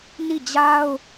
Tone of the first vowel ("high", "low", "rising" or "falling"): falling